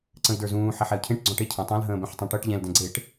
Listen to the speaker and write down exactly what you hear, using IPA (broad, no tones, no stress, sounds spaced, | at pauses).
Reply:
ǀ ə̃ i̯ d ə˞ z ũː ħ ɛ ħ ɛ u̯ cʰ ẽ ʈ ɡ͡ǀ ɔ̃ ʈ e cʰ ə̃ː tˤ ã l ɦ ə̃ː b ɛ̃ ħ tˤ ã ʈ ɤ ʈ ʎ ɛ̃ l d ɛ̃ ɡ͡ǀ e ʈ